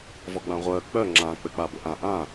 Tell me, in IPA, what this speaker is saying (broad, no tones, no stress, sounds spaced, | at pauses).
v ɔ ɡ͡b ã ʁʷ œ k͡p œ ŋ͡ǁ ã k͡p ɘ k͡p a b ɵ ʔ ã ʔ ã